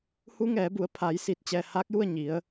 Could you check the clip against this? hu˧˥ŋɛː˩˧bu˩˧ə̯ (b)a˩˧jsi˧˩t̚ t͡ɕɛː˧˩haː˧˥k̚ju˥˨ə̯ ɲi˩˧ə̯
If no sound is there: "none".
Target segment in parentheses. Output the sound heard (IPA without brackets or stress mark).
pʰ